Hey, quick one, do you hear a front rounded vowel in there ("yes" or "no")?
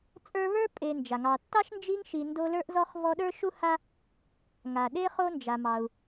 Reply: no